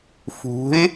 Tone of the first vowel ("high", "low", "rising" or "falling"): rising